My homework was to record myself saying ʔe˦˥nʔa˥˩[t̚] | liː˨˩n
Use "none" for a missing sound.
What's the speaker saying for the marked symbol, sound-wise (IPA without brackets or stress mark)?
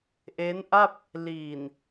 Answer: p̚